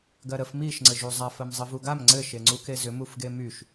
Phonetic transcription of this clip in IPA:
ɡɜɾəf miʃ ŋ͡ǀɘʒuzˤaf ɜmzˤɘvuɡam ŋ͡ǀɘ ʃeŋ͡ǀukezʏ mufɡemyʃ

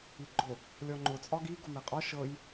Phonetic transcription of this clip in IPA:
iɡ͡ǃʊ | lʲɔŋ͡ǃʊ t͡sʼɒɡi ɡʊmeqʼɒ ʃɤj

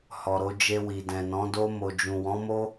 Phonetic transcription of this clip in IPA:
hɔ˨ɾo˧d͡ʒe˧ wi˨dɛ̃˨nɔ̃˨˦do˦ mo˧ d͡ʒũ˨wɔ̃˨˦mo˦

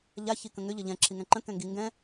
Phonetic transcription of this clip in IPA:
ʎaçi kə̃ŋʏ ʎʌʎɛ̃ ǁʰiŋɛ̃ǃə̃ kɛ̃ŋɡi ŋɡɛ̃

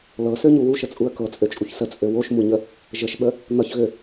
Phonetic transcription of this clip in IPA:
lɤsøɲu wuʃət͡sʼuə̯ kɤt͡sʼøt͡ʃʼuç sət͡sʼø woʃmuɲə | ʒəʃɓə | n̪ʌçɣø

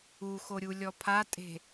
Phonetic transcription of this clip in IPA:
uxoɾʲulʲɔ pʰatʼe̤

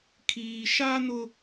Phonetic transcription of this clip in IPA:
kʰiː˨ʃa˦ nʊ˦

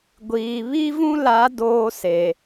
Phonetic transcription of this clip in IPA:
ɡʷiː˨ βi˦vũ˦la˨˦ doː˦se˨

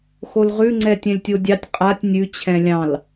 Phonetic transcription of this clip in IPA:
xolʁʉ ŋ͡ǀɛtʲɛ̃lʲtʲodʲɑtʲ qʼatʲ nʲʉ t͡ɕʰɛ̃lʲɑ̃l

